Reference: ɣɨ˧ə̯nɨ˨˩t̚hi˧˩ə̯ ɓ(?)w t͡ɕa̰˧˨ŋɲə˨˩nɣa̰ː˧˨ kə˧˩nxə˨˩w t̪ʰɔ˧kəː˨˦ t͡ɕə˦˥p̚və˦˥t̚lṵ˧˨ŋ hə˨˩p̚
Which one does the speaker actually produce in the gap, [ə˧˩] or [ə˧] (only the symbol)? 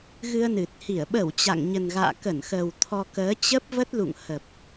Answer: ə˧˩